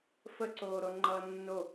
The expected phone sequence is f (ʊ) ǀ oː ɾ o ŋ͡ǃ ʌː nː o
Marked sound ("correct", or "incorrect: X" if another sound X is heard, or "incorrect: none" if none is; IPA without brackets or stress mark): incorrect: ə